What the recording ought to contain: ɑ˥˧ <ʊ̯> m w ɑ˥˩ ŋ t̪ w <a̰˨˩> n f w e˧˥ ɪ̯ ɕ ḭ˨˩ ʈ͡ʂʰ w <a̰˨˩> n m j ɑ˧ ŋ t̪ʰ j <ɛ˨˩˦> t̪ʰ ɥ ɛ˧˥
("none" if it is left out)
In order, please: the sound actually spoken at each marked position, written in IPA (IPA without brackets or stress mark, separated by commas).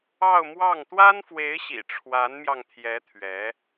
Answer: ʊ̯, a˥, a˧˥, ɛ˧˥